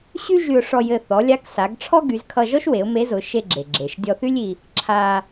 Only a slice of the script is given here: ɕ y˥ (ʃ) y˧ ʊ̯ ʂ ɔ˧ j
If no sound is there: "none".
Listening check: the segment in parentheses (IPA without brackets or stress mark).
ʒ